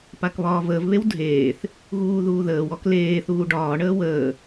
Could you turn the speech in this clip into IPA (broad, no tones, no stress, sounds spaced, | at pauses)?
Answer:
p a k β ɒː v əː v β e w dʱ eː θ | ɣ uː ð uː ð əː w ɔ k l eː θ uː ɖ ɒː ɳ əː w əː